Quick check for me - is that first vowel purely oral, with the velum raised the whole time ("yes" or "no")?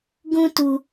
no